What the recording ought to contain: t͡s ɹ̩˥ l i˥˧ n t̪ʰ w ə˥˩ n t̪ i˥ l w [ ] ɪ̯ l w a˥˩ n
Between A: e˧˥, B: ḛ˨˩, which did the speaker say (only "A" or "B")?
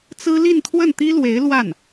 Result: A